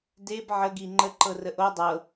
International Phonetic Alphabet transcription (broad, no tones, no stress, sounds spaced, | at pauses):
d e b ʕ ə ɡ i ŋ͡ǃ ə ǃ ɤ r ə ʔ o dˤ ɤ